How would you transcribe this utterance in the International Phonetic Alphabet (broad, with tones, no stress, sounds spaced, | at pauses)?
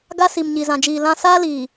ɡ a˦ s i˨ m ɲ i˨ z ã˨ d͡ʒ iː˨ l ã˦ s aː˦ l iː˨